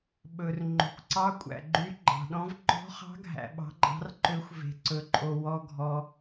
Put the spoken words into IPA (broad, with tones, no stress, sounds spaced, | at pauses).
ɓ ɵ˨ r ŋ͡ǃ o̤˨ kʷ ǀ ɑ˧˥ kʷʼ æ̰˨ ɡ͡ǃ y˧˥ ɡ͡ǃ ɑ̤˨ ɗ ɔ̃˧˥ v ŋ͡ǃ ɔ̤˧˥ χ ɑ̤˧˥ ɡʱ æ̰˨ ɓ ɑ̤˧˥ ɡ͡ǃ ɑ̤˧˥ r ǃ ø˧˥ xʷ v e̤˨ ǀ ɵ˨ ǃʼ o˨ w ɔ˨ ɡʱ ɔ˨